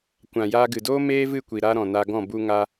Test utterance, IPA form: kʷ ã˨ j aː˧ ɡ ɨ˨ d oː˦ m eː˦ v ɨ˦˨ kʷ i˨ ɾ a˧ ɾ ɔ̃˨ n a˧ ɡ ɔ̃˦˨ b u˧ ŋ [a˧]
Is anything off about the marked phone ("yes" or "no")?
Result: yes